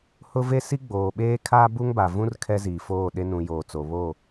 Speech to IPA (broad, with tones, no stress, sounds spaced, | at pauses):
h ʊ˦ v e˦ s i˦ ɡ͡b oː˨ ɓ eː˦ kʰ a˦ b u˦ ŋ b a˨ v ũ˦ r kʰ ɛ˦ z iː˨ f oː˦˨ ɗ e˦ n ũ˨ j oː˨ t͡s o˨ β o˦˨